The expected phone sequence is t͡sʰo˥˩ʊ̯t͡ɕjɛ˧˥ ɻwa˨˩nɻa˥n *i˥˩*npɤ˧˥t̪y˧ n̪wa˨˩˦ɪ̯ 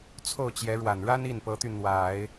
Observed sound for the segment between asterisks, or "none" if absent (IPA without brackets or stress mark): i˥˩